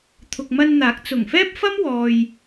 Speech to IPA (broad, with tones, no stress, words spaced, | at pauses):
t̪ʰʊ˨k̚mɐ˧nn̪aː˨˥k̚ t͡sʊ˨˩ŋfɛː˥p̚fɐ˥mwɔː˨j